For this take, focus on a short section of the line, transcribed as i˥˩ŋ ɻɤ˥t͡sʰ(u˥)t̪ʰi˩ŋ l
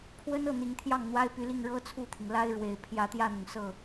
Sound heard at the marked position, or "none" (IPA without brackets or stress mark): u˥˩